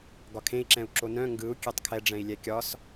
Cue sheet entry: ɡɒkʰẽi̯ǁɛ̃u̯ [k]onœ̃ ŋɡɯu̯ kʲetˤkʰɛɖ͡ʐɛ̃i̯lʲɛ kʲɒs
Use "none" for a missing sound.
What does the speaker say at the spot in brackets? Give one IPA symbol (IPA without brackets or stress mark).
ǁ